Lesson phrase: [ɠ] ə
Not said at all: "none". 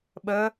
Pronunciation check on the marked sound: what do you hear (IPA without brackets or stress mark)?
ɓ